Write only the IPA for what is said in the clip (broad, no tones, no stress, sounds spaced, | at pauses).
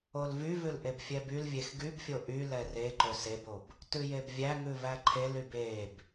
o l v y v ʉ l ʔ e b fʲ ɛ b y l vʲ e x ɡ y b fʲ o ʔ y l ɛ r e ǃ ɵ s e b o b | t ʉ j e b vʲ æ ŋ ʉ v æ ǃʰ e l y b e b